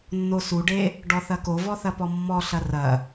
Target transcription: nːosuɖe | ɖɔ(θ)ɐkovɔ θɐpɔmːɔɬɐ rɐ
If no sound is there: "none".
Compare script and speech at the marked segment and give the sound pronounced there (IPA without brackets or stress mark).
θ